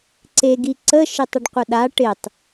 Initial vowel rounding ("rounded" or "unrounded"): unrounded